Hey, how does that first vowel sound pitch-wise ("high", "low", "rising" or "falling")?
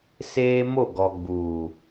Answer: high